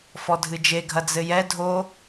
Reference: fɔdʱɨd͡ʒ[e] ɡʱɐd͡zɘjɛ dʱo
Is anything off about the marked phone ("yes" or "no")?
no